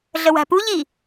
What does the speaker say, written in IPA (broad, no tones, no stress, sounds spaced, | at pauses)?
ɮ ə w æ̤ p u ʎ i